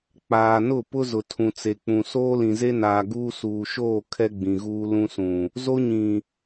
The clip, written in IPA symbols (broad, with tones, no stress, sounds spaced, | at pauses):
k͡p aː˨ n ʊ˦˨ p ʊ˦ z ʊ˨ tʰ ũ˨ t͡s e˨ k͡p ũ˨ s oː˦ l ĩ˨ z e˦ n aː˨ ɡ uː˦ s uː˨ ʃ oː˦˨ kʰ ɛ˦ ɡ͡b ĩ˨ ɣ uː˦ l ũ˦ s ũ˨ | z o˦ ɲ ĩ˨